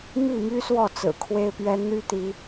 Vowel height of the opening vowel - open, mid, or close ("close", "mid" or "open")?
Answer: close